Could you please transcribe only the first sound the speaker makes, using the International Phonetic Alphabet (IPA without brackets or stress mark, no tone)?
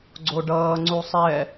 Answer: ɡ͡ǀ